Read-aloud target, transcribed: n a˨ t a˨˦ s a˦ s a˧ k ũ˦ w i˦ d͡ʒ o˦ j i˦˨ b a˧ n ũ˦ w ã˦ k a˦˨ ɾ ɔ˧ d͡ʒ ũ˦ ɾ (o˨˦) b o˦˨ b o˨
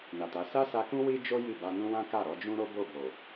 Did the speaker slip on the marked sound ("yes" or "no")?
yes